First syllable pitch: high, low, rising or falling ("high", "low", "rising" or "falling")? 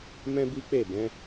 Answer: high